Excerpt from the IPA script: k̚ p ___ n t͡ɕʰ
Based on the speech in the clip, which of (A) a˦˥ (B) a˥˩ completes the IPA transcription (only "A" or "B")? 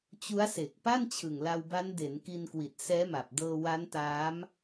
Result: B